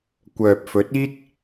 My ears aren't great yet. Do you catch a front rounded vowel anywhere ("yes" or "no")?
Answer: yes